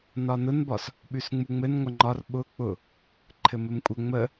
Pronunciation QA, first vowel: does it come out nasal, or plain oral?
oral